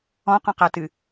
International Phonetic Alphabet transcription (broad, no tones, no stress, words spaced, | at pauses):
ɔ̃qɔ̃qatɨ